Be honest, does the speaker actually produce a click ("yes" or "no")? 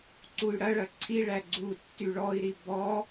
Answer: yes